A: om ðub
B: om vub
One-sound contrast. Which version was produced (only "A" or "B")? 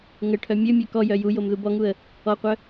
A